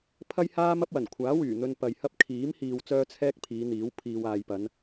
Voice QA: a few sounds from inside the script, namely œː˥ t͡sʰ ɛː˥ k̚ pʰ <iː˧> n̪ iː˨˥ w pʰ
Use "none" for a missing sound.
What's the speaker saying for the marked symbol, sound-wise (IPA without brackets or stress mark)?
iː˨˧